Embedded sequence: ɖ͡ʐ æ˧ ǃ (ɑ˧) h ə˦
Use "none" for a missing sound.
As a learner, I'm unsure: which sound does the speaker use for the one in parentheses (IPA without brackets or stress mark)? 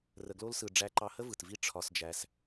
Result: ɑ˧